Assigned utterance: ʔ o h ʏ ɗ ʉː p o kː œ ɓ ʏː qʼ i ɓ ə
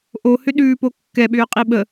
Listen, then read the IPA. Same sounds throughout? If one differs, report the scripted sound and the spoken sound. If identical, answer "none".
œ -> ɛ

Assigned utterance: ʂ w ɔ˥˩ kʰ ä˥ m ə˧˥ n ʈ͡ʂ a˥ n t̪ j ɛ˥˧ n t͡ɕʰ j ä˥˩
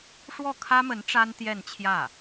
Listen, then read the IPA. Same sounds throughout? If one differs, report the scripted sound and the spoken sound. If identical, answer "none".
none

